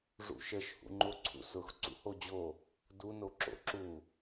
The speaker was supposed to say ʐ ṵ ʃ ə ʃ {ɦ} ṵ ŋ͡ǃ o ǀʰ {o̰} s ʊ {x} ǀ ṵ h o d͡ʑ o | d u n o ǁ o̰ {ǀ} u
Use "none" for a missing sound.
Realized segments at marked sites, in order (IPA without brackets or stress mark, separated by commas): h, ṵ, x, ǁ